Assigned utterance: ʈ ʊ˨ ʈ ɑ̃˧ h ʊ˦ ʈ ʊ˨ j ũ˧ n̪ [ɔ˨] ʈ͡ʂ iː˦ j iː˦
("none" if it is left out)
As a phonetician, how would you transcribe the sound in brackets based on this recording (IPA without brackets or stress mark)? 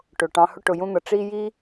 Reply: ʌ˨